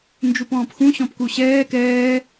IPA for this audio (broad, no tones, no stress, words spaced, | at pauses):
nd͡ʒupɔ̃ːpxũ ɕɔ̃pkuɕɛː kɛː